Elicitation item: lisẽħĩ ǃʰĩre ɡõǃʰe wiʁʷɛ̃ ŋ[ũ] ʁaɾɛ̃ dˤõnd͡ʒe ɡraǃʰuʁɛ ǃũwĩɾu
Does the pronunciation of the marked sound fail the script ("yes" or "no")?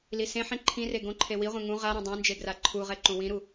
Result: no